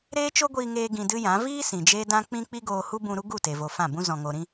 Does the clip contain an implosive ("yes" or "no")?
no